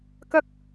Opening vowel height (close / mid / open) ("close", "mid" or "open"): open